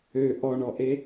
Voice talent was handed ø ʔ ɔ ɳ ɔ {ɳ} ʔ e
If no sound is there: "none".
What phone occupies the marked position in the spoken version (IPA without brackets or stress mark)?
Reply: none